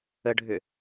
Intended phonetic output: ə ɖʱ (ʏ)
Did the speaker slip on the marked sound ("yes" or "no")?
no